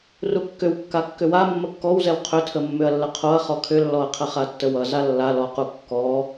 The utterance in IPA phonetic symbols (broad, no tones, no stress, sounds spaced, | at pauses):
r u kː ʏ w kː a kː ʏ w a mː ə kː ɔ w z ɛ w qʰ ʏ tʰ ə mː ʏ ɐ̯ lː ə qʰ o ɐ̯ χ ɔ kʰ ʏ lː ɔ ɐ̯ qʰ ə χ a tː ə w ʌ z a lː a l ɔ q u kː ɔ